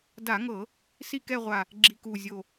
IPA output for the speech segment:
da˧˩˧ŋɤ˧˩˧ | si˥˧kɛ˥˧ʁʷa˧˩ | ɡ͡ǁi˧˩ku˧˩zʲo˧˩

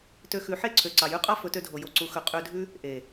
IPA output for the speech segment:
tø˧xʉ˨˦ħe˦˨ǀʰø˨ ǀɑ˨jʉ˦qʼɑ˦ fɵ˨˦tø˧dʱo˨ jo˨ǀu˨ xɵ˨ qʼø˧dʱʉ˦ | ʔe˨

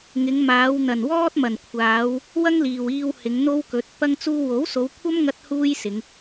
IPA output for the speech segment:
ŋɪ˨˧ŋmaː˨˧w n̪ɐ˨˩nwɔː˥t̚mɐ˨˩nkʷʰaː˨˧w | wɐ˥ŋliː˨wiː˧w hɪ˨˧ŋn̪o˥wkɵ˨˥t̚ pɐ˥ŋt͡suː˥ wo˨˥wso˨˧wkʷʰɐ˥m ŋɐ˥t̚ huː˥jsɪ˨˧ŋ

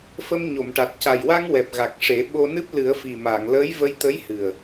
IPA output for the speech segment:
fə˧mɲo˨˩˨mʈa˨˩t̚ ca˨˩jwa˧ŋ wɛ˨˩p̚ ɣa˨˩k̚ʂe˨˩˦ ɓo˧nɨ˦˥p̚ lɨ˨˩˦ə̯fi˨˩ma˨˩˨ŋ ləː˧˥jvə˧jt̪ə˧˥jhɨ˨˩ə̯

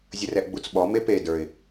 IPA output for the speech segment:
zʲərɛʔɡ͡but͡sɓɔ mepe də˞ɪ̯

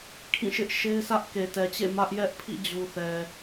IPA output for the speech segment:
kʰĩ˦˨ʃɪ˦ʔʃe˦ɪ̯ sä˦ʔke˨tɛ˨t͡ɕḛ˦˨ mä˦ʔjɛ˦ʔpʰḭ˦˨ d͡ʑu˨θɛ˨

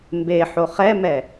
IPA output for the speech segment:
mbeħo χɛmɛ

